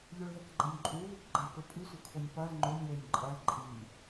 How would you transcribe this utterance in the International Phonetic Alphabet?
ʎ ɵ ɭ ð ɐ k ɡ͡ǃ ɐ nʲ ǃʼ u ð ʉ k ɡ͡ǃ a k ɵ pʼ ɨ sʷ ɨ kʰ o nʲ p ɐ l ŋ͡ǃ ɵ nʲ l e nʲ ǃʼ ɐ l ǃʼ i

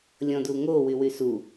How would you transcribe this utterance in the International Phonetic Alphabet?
lʲ ɔ̃ d u ŋ o w y w y s u

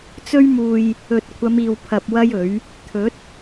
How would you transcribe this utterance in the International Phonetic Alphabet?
t͡s ɵ˥ ɥ m uː˧ j | ɵ˨ t̚ kʷʰ ɐ˨˧ m iː˨ w pʰ ɐ˧ p̚ w ɐ˥ j ɵ˨˥ ɥ | t̪ʰ ɵ˨˥ t̚

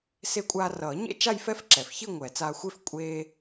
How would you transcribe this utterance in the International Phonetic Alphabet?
s e˧ kʷʼ aː˧ r ʌː˨˩˦ ɲ ḛ˥˧ t͡ʃ a˥˧ j f ɛ˥˧ f ǁ ɛ˩ f ç i˥˧ ŋʷ ɛ˨˩˦ t͡s aː˧ xʷ e˥˧ f kʷʼ eː˧

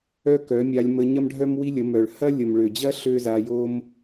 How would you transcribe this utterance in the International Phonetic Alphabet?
œ˦ k œ˨˦ mʲ a˧ lʲ m ə˧ ɲ ɐ˦ m ɖʱ œ˦ m w i˦ lʲ ə˨˦ m œ˨ ɭ h ɐ˦ lʲ ə˨ m ɭ ø˨ d͡ʑ ɐ˦ ɬ ø˦ z a˧ j o˦ m

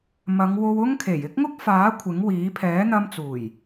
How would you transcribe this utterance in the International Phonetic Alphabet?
m ɐ˨˧ ŋ w o˧ w ʊ˥ ŋ kʰ e˨˩ j ɪ˥ k̚ ŋ ʊ˥ k̚ f aː˨˥ kʷʰ ɪ˨˥ ŋ w iː˨˥ pʰ ɛː˨˥ n̪ ɐ˧ m t͡s uː˨˩ j

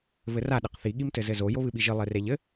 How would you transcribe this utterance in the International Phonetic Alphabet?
v ɘ r a ɗ ɘ q θ i ɠ i m t ɘ z ɘ z o j o β ɨ ɓ i ʒ ɨ lˠ e r e ʎ ɘ

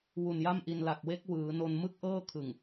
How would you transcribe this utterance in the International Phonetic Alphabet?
w u˨˩ n j a˥˩ m ʔ i˧ n l a˨˩ k̚ w e˦˥ k̚ w ɯː˩˦ n o˧ n m ɯ˥˩ k̚ ʔ ɤː˥˩ kʰ ɯ˨˩ ŋ

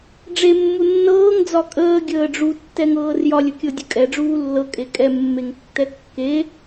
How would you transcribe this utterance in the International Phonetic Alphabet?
ɖ͡ʐ e mː u nː ɤː ŋ d͡z ɒ kʼ əː ɡʲ əː ɖ͡ʐ u tː ɛ ŋ ɤː r j ɒ lʲ ə kʲ ɤ dʲ ə kʼ ɛ ɖ͡ʐ uː lː ɤ kʼ e kʼ ɛ mː e ŋ tː ɛ kː e

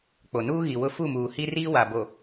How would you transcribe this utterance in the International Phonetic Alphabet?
k͡p o˨ n uː˦ ɣ i˨ w ʊ˦ f u˦˨ m uː˨ h i˦ r iː˦ w a˨ b o˨

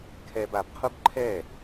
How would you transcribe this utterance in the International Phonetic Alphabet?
kʰ ɛ b a b qʰ u b ǃʰ ɛ

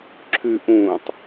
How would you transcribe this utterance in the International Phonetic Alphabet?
ǁʰ ʉ ʔ ũ tˤ

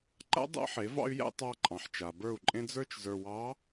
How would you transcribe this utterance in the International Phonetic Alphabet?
ǃ a̰˦ dˤ æ̰˦ ħ e˨˦ v ɑ̰˦ y̯ j æ̰˦ tˤ ɑ˦ ǃʼ ɑ̃˨ ħ t͡ʃ a˨ b ə˞˦˨ u̯ ǃʼ ẽ˦ d͡z ə˞˦ t͡ʃ z ə˞˨ w ɑ˨˦

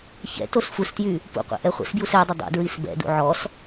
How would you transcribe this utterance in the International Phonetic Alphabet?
ç ɛ̰ t o s f u s t j y | p ṵ qʷ ɛ̰ ʔ ɛ χʷ ɛ̰ s b j u s ɛ dˤ ə dˤ ṵ d ɹ i s b ɛ̰ d ṵ ʕ ɔ s

